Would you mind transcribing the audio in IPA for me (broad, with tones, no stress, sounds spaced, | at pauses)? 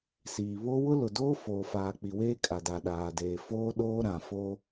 s iː˨ β o˦ w ʊ˦ l ʊ˨ d oː˦ f oː˨ f aː˨ k͡p i˨ w eː˦ kʼ a˨ d a˨ ɗ aː˨ d eː˨ f oː˦ ɗ oː˦ ɾ ã˨ f o˦